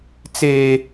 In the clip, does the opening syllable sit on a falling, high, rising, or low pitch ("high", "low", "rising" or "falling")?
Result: high